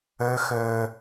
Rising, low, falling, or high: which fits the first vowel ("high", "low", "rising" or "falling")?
high